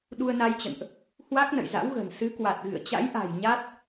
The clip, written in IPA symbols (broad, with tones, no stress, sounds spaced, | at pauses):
ɗ u˧ ə̯ n a˧ j t͡ɕ ə̰˧˨ n ʔ | h w a˦˥ k̚ n ə̰˧˨ j z a̰˧˥ w ɣ ə̤˨˩ n s ɨ˨˦ k w a˨˩ t̚ ɣ ɨ̰˧˨ ə̯ t͡ɕ a̰˧˥ j ʔ a̤˨˩ j ɲ a˦˥ t̚